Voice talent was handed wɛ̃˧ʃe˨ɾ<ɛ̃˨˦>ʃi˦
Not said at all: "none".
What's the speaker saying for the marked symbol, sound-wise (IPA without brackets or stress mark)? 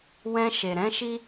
ɛ̃˨˦